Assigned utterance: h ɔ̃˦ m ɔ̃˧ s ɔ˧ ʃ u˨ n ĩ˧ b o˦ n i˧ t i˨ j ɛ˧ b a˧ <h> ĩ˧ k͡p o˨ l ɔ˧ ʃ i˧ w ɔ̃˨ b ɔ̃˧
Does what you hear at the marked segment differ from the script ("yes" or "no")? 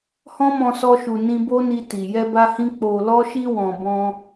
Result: no